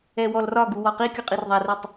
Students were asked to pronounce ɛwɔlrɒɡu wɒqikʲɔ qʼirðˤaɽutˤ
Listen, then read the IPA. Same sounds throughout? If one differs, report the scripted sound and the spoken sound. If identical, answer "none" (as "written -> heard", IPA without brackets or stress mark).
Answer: ɽ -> r